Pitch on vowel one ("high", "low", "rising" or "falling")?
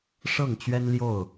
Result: falling